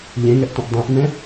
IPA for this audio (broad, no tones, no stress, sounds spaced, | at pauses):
ʎ ẽ ŋ ɛ ʔ tʷ ə̃ ʔ dˤ ẽ ʔ n ɛ̃